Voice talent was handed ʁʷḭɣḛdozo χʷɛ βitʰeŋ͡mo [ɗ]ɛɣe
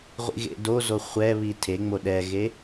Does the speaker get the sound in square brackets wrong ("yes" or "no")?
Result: no